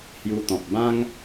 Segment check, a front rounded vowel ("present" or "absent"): absent